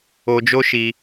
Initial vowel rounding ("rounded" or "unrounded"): rounded